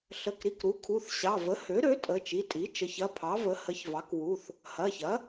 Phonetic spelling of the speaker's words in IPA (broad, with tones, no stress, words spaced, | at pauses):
ɬə˩˧˩k ɾi˩˧˩kɾu˩˥kʰu˩˧˩θ ɕɑ˩˧˩ və˩˥hø˩˥ɾø˩˥ tʼə˩˧˩t͡ʃi˩˧˩tʼi˩˥t͡ʃə˩˥ç ɐ˩˧˩ pʰɑ˩˥və˩˥ hə˩˥çvɑ˩˥kwu˩˧˩θ | hɐ˩˧˩çɐ˩˥